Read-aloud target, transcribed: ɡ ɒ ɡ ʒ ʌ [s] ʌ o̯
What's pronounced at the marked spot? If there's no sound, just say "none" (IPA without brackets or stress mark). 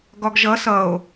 s